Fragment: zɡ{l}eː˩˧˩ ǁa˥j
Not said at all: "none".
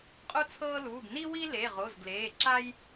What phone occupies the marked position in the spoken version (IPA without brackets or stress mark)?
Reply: l